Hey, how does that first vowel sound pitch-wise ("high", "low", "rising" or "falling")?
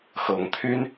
rising